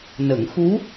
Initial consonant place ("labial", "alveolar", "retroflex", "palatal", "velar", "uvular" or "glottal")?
alveolar